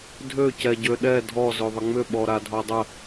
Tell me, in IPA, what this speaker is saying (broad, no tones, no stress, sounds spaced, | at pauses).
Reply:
dʱ ø c ɛ ɟ ø ɗ ɛ dʱ ɔ z ø ðˤ ə ŋ͡m ʏ ɓ ɔ ɾ a dʱ ɔ dˤ ə